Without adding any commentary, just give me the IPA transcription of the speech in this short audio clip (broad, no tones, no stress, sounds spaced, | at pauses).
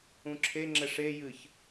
ũ ǁʰ e ŋ͡ǁ ɛ ʂ e j ɨ ç